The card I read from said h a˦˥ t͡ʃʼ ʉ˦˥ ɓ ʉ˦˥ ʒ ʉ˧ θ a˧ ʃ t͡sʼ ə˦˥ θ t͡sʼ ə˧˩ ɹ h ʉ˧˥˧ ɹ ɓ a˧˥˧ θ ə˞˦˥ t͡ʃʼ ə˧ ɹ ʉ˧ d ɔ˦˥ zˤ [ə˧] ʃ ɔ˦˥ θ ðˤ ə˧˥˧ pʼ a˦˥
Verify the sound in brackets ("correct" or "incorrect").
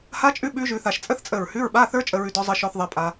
incorrect